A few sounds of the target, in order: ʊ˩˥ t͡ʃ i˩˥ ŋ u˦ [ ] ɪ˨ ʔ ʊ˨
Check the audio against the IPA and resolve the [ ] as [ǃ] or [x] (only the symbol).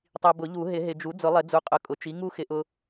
x